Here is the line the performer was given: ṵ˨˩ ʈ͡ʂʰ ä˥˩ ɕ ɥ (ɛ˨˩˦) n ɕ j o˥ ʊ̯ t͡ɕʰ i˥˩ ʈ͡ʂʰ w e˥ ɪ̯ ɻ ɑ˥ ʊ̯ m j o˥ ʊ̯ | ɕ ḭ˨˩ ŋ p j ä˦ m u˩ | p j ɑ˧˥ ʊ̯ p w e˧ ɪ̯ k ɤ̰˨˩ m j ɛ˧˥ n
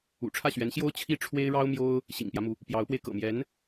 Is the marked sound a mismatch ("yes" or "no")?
yes